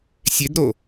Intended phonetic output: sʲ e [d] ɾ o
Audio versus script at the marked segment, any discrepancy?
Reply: no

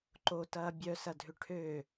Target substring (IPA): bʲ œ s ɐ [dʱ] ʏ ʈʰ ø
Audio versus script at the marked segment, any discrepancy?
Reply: no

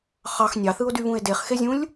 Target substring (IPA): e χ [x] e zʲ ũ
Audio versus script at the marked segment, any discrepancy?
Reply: no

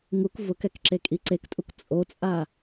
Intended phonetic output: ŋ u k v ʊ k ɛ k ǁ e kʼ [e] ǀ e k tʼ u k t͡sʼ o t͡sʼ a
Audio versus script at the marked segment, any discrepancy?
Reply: yes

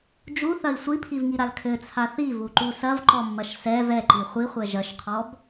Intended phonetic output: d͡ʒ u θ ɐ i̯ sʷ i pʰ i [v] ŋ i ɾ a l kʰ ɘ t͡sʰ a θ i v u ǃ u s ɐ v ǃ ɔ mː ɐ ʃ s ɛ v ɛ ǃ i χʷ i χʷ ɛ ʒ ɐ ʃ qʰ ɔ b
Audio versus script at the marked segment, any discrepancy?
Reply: no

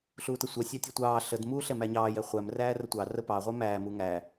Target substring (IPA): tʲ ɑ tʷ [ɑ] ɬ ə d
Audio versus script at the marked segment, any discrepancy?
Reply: yes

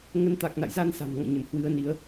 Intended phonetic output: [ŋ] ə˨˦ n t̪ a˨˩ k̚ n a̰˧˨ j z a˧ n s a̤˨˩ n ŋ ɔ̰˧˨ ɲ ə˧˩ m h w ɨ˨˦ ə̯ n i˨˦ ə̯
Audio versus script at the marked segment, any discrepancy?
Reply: no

